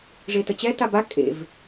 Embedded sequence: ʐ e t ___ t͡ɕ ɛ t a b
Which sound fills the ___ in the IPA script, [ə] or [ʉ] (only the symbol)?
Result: ə